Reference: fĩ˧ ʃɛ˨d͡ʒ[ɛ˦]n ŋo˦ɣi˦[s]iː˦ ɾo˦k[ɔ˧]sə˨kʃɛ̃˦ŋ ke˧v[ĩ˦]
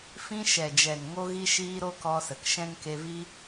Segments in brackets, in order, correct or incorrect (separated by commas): incorrect, incorrect, correct, incorrect